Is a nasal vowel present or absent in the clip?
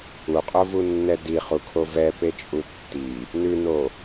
absent